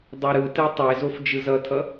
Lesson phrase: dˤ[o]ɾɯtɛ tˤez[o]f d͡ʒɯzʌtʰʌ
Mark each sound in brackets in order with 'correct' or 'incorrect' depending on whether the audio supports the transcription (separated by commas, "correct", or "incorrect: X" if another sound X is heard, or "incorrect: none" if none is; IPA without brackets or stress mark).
correct, correct